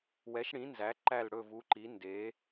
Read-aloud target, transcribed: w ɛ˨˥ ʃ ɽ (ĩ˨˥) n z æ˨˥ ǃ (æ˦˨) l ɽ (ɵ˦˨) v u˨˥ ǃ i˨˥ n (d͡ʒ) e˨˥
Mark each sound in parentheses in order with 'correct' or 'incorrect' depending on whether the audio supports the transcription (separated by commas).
correct, correct, correct, incorrect